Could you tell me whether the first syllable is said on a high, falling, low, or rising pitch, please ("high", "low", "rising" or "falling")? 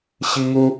high